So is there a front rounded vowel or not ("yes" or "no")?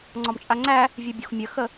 yes